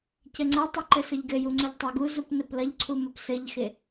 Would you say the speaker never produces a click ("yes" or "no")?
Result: no